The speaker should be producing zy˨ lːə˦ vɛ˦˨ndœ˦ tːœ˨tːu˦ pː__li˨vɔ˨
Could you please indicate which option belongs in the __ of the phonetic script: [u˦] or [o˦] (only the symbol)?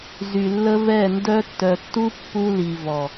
u˦